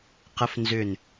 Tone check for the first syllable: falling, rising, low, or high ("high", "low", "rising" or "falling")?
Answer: rising